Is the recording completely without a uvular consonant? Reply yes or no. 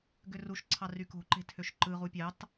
no